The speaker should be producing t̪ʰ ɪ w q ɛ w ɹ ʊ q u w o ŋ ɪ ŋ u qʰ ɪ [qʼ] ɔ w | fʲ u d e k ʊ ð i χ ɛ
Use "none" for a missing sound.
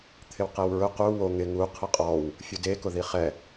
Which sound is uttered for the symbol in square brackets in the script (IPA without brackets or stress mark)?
qʼ